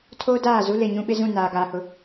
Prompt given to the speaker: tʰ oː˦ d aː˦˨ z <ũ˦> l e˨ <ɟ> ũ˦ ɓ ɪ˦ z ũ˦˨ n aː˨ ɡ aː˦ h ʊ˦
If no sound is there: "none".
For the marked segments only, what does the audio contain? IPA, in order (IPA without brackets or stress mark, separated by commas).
u˦, ɲ